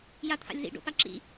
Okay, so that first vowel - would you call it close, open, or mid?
open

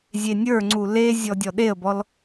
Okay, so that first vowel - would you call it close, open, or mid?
mid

